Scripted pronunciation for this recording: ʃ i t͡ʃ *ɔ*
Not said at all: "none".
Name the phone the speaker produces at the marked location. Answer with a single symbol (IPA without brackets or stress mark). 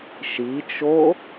o